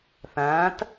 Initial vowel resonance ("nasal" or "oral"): nasal